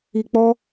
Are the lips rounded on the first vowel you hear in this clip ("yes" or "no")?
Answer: no